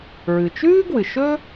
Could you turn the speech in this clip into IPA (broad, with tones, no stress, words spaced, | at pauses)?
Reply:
ɹɨ˩t͡ʃʉː˥ɡwɨ˩ʃɵː˥